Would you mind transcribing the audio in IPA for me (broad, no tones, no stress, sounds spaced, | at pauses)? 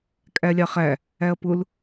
kʼ æ lʲ ɑ χ æ | æ ɐ̯ p ʊ l